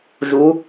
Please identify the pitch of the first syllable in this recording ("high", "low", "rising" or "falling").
rising